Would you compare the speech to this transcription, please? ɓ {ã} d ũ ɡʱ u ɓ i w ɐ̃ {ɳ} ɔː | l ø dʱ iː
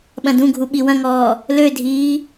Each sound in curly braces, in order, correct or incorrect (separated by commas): incorrect, incorrect